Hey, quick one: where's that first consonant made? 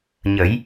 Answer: palate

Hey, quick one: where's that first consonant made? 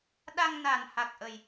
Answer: tongue tip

